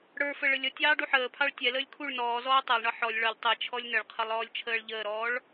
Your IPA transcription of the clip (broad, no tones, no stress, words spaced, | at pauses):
ɽə˞fə ɭəlʲʌtʲɑː ɖuħəːpʰɑɭ tʲɛləːlʲ kʰuɭ nɔːzɔː tˤɑlˠɳʌ ħɔlʲ ɭʌlʲ tˤɛ t͡ʃʰɔlʲnəɭqʰʌlˠ ɔːlʲt͡ʃʰəːɭʎəːɾɔːɭ